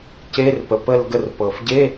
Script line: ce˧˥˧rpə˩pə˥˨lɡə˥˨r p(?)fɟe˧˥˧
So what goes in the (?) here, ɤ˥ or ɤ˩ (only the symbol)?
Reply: ɤ˩